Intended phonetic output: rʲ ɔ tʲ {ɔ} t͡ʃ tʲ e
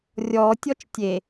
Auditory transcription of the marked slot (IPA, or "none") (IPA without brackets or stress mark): ɔ